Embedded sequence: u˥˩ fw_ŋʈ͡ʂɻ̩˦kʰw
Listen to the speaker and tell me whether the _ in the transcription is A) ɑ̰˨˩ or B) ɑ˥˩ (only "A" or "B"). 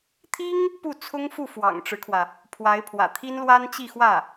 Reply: A